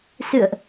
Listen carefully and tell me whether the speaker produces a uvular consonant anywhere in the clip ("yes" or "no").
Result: no